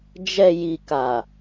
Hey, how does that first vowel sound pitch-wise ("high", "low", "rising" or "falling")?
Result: low